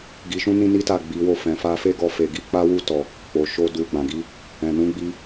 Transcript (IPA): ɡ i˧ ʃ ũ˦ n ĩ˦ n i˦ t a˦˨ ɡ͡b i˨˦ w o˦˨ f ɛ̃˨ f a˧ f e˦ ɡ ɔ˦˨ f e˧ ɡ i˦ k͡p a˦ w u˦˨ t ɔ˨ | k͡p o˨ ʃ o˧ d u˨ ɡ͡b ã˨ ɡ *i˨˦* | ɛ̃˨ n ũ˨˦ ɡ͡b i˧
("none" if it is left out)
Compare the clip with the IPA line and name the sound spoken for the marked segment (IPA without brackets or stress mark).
i˨˦